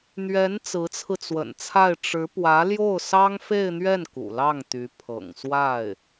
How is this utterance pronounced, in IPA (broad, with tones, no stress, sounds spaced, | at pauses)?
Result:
n̪ ɥ ɛ˧˥ n t͡s ɹ̩˧˥ t͡sʰ ɹ̩˧ t͡s w ə̰˨˩ n t͡sʰ a˥˩ ɪ̯ ʈ͡ʂ ɻ̩˧˥ p w ä˧˥ l j o˥˩ ʊ̯ s ɑ˥ ŋ f e˥˧ ɪ̯ n̪ ɥ ɛ˥˩ n k ṵ˨˩ l ɑ˥˩ ŋ t̪ y˧˥ pʰ ɤ̰˨˩ ŋ s w a˥˩ ɪ̯